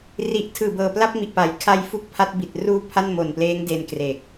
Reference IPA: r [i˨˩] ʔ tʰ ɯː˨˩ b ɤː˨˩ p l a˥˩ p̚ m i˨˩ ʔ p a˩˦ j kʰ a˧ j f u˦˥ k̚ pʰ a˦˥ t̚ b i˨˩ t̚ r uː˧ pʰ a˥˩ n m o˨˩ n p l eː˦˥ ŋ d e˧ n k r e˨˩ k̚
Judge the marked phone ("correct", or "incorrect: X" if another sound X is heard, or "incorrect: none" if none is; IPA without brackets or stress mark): correct